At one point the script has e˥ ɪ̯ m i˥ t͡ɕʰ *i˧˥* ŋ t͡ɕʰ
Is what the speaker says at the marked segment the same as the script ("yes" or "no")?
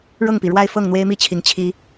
yes